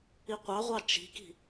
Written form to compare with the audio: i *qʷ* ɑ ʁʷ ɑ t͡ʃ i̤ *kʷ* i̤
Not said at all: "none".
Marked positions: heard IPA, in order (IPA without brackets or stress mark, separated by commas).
qʷ, k